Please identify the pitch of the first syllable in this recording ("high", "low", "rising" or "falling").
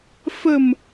low